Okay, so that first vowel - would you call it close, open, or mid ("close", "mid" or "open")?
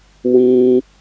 close